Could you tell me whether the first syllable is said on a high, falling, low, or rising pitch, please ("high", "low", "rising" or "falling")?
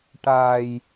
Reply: low